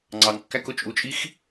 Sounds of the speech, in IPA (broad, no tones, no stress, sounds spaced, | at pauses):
ŋ͡ǀ ɑ ŋ kː æ k ʊ t͡ʃʼ u t͡ʃʼ i x